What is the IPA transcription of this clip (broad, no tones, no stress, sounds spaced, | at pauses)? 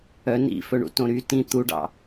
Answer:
œ n ḭ f ɵ ɳ ṵ t õ ɾ y t ĩ t̪ u ɖ ɑ̰